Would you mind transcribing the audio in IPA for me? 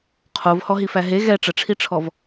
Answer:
qʰovhɔɦifæ ɦe ɣɛ ʈ͡ʂəʈ͡ʂʰiʈ͡ʂʰɔv

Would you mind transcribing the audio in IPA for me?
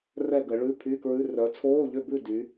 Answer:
rɛ˥˨ɡə˨˦ ɭʉ˧˥˧pʰy˧˥˧kɹʉ˧˥˧ rœ˨˦t͡sʰoː˧˥˧ʎʏ˥˨bʉ˥˨ dy˨˦

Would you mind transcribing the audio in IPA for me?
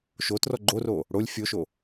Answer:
ʃotrɔ ɡ͡ǃoro | ɽolʲ fʲoʃo

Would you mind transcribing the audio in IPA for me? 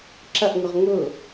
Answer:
ǁɐʔŋʊʁ ŋʊ

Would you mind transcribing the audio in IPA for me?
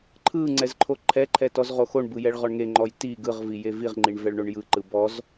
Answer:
ǃʰɯ ŋ͡ǀɛzǃʰoǃʰɛǃʰɛ tɔzʁoxoɳbɯ jɛɭʁɔɳŋeŋ͡ǃɔj ti ɡɯʁvi jeviʁŋ͡ǃiɳ vɛɭɳoɳjɯǃɯ bɔz

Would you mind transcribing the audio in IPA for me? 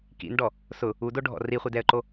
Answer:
kḭnɖɔ | sʊ | udoɖʱɔ̰ riχʷidɛə̯ǃo

